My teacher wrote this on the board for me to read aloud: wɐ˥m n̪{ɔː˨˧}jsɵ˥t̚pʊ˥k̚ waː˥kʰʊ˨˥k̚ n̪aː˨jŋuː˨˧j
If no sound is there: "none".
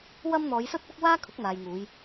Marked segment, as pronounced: ɔː˨˧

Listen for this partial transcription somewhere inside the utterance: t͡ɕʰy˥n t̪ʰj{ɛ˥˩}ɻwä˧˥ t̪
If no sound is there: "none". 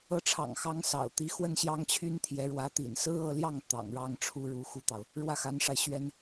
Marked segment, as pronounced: ɛ˧˥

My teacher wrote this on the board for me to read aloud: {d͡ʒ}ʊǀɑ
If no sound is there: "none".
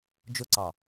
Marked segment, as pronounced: d͡ʒ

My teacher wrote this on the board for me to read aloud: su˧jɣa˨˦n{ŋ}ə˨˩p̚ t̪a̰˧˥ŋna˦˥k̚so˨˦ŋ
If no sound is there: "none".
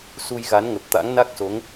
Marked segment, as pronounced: ŋ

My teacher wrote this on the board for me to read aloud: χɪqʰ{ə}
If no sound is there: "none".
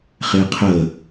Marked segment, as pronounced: ə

